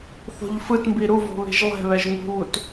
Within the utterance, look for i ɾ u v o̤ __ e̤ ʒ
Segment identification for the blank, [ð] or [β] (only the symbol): β